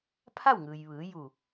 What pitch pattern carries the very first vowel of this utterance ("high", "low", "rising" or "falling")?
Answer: falling